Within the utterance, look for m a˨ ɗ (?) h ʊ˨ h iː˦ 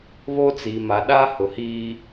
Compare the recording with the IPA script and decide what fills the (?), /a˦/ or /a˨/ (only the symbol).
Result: a˦